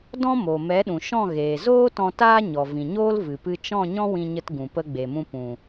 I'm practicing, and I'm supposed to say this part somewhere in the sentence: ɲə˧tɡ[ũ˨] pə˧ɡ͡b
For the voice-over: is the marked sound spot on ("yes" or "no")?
yes